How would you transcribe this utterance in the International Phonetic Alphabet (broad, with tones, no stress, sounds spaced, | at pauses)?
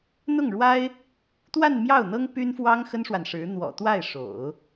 n̪ ʊ˥˩ ŋ ɻ w a˥ ɪ̯ | t̪ w a˥˧ n m j ɑ˥˩ ʊ̯ n̪ ɤ˥ ŋ p y˥ n f w ɑ˥ ŋ x ə˥ n ʂ w a˨ n ʂ ɻ̩˧˥ n̪ w ɔ̰˨˩ t̪ w a˥˩ ɪ̯ ʂ o̰˨˩˦ ʊ̯